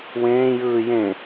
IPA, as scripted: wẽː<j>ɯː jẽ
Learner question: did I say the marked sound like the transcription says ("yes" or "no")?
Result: yes